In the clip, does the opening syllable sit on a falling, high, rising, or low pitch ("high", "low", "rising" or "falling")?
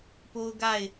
high